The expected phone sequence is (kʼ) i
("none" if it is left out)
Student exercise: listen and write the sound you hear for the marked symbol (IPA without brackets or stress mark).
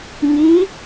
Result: ŋ